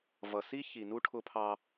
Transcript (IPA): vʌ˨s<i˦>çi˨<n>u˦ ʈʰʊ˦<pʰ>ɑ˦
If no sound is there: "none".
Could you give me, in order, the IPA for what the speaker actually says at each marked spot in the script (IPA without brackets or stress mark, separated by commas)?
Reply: i˦, n, pʰ